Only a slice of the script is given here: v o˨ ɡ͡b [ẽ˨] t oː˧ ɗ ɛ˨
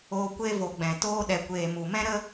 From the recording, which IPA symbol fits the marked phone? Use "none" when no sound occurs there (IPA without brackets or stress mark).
ɛ̃˨